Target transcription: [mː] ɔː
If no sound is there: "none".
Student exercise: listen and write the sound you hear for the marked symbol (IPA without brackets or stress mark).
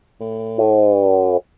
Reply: mː